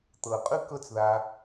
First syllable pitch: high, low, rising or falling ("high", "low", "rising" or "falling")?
low